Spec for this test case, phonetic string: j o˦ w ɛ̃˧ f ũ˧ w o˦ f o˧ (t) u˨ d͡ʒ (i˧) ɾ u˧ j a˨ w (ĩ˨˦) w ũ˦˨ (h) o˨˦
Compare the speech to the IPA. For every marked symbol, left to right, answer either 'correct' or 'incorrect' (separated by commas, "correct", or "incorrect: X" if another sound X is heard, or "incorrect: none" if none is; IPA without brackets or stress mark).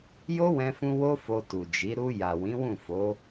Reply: correct, incorrect: i˨˦, correct, incorrect: f